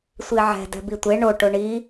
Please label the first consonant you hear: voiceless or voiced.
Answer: voiceless